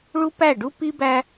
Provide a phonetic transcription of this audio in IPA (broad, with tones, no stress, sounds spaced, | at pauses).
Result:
ɭ u˦ p æ˦˨ ɖ u˦ p i˦ b æ˦